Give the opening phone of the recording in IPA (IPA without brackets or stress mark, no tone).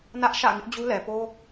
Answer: n